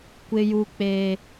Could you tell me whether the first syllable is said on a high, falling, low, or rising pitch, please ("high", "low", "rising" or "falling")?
high